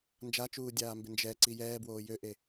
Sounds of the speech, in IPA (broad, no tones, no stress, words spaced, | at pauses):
nd͡ʒat͡ʃuːdʲaːmbe nd͡ʒɛǀi jɛːbwoː jøʔe